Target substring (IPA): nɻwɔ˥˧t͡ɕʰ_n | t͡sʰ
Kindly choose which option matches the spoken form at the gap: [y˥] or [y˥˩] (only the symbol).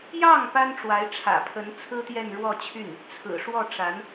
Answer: y˥˩